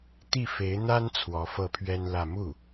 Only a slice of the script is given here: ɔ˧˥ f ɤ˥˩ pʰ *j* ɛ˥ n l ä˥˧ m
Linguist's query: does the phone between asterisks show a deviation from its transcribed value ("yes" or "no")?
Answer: yes